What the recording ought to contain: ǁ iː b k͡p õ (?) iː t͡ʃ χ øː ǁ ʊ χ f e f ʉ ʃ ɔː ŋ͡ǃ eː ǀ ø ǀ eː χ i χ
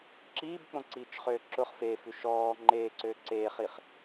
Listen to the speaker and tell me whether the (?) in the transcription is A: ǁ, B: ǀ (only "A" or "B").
B